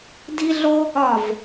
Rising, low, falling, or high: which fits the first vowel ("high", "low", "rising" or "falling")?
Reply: high